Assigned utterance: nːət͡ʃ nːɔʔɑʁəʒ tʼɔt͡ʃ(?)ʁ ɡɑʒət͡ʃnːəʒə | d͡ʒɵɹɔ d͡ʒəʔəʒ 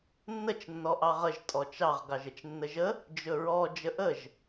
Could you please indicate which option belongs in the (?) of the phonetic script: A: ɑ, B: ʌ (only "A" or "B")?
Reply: A